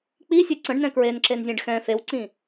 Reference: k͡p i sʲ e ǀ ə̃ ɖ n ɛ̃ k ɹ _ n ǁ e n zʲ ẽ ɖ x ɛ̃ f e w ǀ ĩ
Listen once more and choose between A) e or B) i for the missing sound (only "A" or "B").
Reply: A